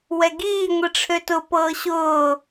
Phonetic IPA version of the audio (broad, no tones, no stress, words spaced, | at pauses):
wɛɡiː ŋʷiʈ͡ʂʰøtʊ pɤːɕʊː